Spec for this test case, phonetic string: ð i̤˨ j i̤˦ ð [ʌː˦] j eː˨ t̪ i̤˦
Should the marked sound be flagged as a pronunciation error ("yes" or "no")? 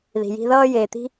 no